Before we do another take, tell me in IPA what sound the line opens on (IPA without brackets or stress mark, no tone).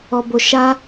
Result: ɔ